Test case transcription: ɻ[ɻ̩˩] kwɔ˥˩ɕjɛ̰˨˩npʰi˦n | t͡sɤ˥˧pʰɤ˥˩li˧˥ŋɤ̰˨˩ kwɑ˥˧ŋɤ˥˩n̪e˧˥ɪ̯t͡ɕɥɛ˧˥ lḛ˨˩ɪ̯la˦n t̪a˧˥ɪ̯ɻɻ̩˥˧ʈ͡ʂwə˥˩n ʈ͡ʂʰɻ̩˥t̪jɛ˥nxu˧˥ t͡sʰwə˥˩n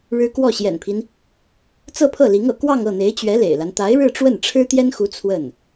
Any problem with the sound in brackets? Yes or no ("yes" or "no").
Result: yes